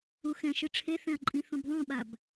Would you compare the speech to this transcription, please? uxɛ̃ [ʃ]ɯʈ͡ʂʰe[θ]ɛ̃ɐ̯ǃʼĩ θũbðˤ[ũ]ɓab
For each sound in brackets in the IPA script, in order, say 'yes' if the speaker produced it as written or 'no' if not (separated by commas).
yes, yes, yes